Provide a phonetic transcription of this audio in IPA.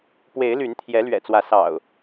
p w e˨˦ ɪ̯ l y˨˦ n t̪ʰ j ɛ˨˦ l ɥ ɛ̰˨˩ t͡s w ä˨˦ s ɑ̰˨˩ ʊ̯

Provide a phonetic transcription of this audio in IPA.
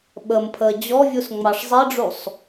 ɓ ə m pʰ əː d͡ʑ ɔ vʲ u s ŋ͡m ɑ ʂ zˤ i ɖ͡ʐ u sˤ

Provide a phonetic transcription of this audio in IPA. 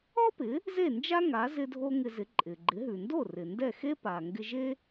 ɔ˥ p ɪ˩˥ | z e˥˩ n d͡ʒ a˥ ŋ a˩˥ z ɪ˧ dʱ o˥ ŋ ɪ˧ z ɪ˩˥ ǃʼ ɪ˩ ɡ͡ǃ ɪ˩˥ ɦ ʉ˩ n d o˥˩ r ɪ˩ n d ɛ˥˩ x e˥ p a˩ ŋ ɡ ɪ˧ ʒ e˥

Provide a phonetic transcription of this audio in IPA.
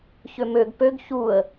ç ø m ø ɡ p ø ɡ ç u ə̯

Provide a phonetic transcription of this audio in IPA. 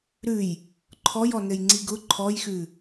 ɾ ʉ j | ǃʰ ɔ j ɔ n ɘ j ŋ͡ǀ i ɡ ʊ ǃʰ ɔ j x ʉ

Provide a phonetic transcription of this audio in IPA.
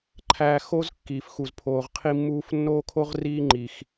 ǃʰ æː˧ x o˦ z kː iː˨ f x u˨ z pʰ oː˨ ʁ qʰ i˧ mː uː˧ f nː oː˦ kʰ o˦ ʁ r iː˦ ŋ͡ǃ i˨ x

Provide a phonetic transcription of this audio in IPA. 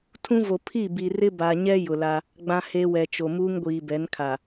tʰ ũ˦ v o˨ pʰ i˦˨ b i˨ r ɪ˦ b a˨ ɲ ɛ˦ j ʊ˨ l a˦ | ɡ͡b ã˦ h e˦ w ɛ˨ t͡ʃ o˨ m uː˦ ŋ ɡʷ iː˨ b ɛ˨˦ n kʰ a˨

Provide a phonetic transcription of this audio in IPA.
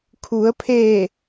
kʰ u˩˧ ə̯ pʰ eː˧˩

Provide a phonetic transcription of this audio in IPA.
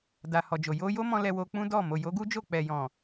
d a˨ h ɔ˨ d͡ʒ o˨ j o˧ j o˦ m ɔ̃˧ l ɛ˧ w o˧ k͡p ũ˦ d ɔ˦˨ m o˨ j o˨˦ ɡ u˦ d͡ʒ o˦˨ k͡p ɛ˨ j ɔ̃˨

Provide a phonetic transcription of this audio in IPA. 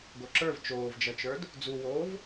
ɡ o ǁ ə˞ v t͡ʃ oː v d͡ʒ ʌ t͡ʃ ə˞ d | d͡z u w oː v

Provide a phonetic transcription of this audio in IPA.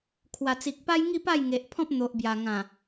kʰ w a˨˩ t͡s i˨ k̚ p a˦ j ŋ i˥˧ p a˥˧ j ŋ e˨ ʔ pʰ ɔ̃˦ p̚ n̪ o˨ ʔ b j a˨˩ ŋ ã˨˩

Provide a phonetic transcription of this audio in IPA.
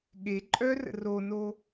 ɠ e ǃʼ œ r ə̰ r o n o

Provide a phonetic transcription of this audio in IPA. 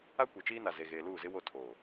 a˦ kʷ e˨ t͡ʃ iː˦ n a˨ z e˨ ɣ eː˨ l uː˦˨ z ɪ˦ w o˦˨ tʰ oː˨

